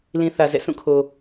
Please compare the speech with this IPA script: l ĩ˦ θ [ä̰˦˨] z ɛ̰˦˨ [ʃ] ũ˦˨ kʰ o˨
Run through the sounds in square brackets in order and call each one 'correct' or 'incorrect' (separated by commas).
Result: incorrect, incorrect